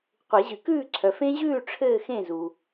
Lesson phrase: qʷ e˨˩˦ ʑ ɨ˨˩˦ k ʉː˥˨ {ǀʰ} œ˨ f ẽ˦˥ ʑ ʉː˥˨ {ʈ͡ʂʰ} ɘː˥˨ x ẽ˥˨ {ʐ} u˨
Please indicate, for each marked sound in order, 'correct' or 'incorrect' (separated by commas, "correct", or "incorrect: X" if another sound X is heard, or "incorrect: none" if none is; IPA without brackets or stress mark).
correct, correct, incorrect: z